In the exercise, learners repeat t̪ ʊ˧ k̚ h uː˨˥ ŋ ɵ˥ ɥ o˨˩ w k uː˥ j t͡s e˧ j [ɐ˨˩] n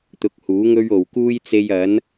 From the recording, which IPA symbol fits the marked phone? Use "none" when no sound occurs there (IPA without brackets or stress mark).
ɐ˨˥